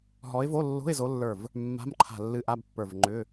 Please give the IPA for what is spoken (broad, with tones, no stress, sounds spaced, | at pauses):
ɦ ɔ˨˦ ɪ̯ v o˧˥˧ lː o̤˧˥˧ ɪ̯ z o˨˦ lː ə˞˧˩ v | mː a̤˧˥˧ m ǃʰ a̤˧˩ lː ɨ˧˥˧ ʔ a˧˥˧ b pː ə˞˧˩ v ŋ͡ǃ ʏ˧˥˧